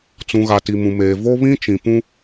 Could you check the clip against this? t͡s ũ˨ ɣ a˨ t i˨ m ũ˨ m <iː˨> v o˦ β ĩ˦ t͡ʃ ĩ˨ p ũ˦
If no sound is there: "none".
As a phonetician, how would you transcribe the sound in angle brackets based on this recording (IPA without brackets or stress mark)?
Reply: eː˨